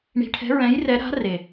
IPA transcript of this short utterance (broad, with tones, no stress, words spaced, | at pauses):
ɳi̤˨˦ʈʰɛ̤˨˦ ɹɛ̃˨˦jrɛ˨˦ɾa̤˨˦ re˨˩